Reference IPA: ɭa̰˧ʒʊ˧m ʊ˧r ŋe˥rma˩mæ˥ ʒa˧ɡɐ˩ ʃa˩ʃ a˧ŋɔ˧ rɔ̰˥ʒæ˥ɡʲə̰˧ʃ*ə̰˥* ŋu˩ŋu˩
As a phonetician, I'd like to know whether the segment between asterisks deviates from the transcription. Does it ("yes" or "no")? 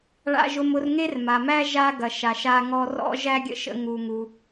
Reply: yes